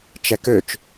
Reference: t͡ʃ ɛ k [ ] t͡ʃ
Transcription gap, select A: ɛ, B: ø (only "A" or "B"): B